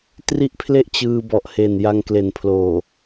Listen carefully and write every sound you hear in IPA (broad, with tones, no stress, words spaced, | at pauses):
tri˥˩ʔpʰle˥˩ʔ t͡ɕɯː˧bɔ˨˩ʔhe˨˩n ja˧ŋkle˨˩npʰloː˨˩